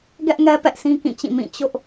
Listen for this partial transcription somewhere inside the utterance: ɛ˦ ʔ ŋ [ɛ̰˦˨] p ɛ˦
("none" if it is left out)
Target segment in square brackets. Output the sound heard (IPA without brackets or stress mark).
ɛ˦